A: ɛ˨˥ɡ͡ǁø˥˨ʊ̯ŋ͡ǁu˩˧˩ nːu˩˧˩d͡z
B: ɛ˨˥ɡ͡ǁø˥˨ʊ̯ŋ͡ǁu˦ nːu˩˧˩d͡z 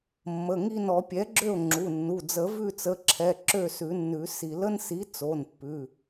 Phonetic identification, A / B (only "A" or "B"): A